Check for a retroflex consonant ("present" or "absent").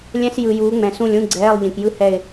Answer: absent